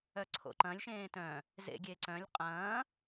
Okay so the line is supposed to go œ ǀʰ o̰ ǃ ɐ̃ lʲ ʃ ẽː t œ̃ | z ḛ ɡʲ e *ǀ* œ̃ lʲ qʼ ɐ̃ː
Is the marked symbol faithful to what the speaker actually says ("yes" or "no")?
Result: yes